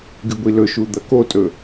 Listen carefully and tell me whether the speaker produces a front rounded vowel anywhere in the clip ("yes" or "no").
no